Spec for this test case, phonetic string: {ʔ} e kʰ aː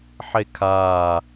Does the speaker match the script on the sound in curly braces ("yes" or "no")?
no